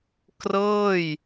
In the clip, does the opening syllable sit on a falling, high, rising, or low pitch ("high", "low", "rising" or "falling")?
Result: falling